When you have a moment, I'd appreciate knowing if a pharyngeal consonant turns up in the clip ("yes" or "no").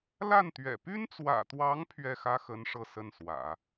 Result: no